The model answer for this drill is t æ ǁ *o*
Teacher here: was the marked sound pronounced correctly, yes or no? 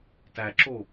yes